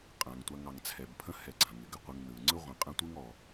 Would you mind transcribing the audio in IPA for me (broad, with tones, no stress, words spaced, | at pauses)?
qʼã˩ŋ tʷa˨ŋɑ˩ŋt͡sʰɛ˩bpʰə̃˥ hɛ˨ɡ͡ǀã˩ŋɪ˩ ɡɪ˨qʷɪ˨ŋ nɯ˩ ŋ͡ǀɯ˥ʁʷə̃˨ qʼã˦tʷɯ˥ŋɔ˨